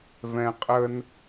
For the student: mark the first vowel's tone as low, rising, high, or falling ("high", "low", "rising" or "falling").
low